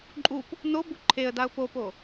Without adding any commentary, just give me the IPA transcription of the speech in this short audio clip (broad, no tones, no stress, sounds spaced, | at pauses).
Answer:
ǃʼ u p | n̪ o b u ǃʰ e ə̯ d̪ a ʊ̯ p o p o